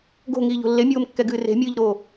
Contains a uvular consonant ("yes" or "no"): no